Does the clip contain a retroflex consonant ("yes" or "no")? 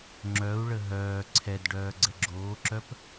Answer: yes